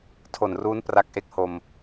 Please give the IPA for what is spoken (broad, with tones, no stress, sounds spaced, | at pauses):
tʰ o˨˩ n r uː˦˥ n p r a˦˥ k̚ ʔ e˥˩ k̚ h o˧ m